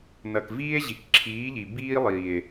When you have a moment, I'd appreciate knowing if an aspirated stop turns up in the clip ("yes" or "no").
yes